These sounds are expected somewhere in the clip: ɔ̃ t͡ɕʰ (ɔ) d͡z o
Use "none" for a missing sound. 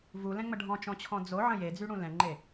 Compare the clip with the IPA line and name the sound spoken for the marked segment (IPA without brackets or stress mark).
ɔ̃